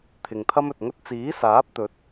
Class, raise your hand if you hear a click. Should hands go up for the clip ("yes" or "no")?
no